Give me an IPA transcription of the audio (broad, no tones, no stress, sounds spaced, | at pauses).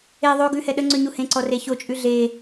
e ðˤ o ɡ ʉ h ɛ ɗ ə ŋ͡ǀ ʉ ɲ u h ẽ ǀ ɔ r e ç o t͡ʃʼ ʉ ɮ e